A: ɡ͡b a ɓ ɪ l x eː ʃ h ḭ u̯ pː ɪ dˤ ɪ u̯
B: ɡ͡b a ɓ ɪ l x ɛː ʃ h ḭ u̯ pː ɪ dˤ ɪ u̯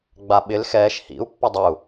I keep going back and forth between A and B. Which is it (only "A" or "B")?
B